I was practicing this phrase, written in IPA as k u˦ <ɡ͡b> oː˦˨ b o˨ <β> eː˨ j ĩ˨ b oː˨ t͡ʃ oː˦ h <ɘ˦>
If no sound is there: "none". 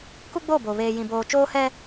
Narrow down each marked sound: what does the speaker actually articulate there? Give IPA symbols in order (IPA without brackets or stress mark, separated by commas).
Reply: ɡ͡b, β, ɛ˦